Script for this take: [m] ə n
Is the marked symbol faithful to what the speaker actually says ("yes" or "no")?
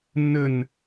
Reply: no